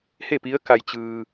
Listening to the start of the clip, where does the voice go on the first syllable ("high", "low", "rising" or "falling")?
falling